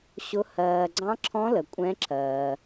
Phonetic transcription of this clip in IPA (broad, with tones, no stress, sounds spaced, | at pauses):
ɕ ʊ˧˥ h ɜː˨ ɡ͡ǀ ɑ̃˧˥ ǁʰ ɔ̃˧˥ l ə˨ kʷʼ ɛ̃˧˥ ǁ ɜː˨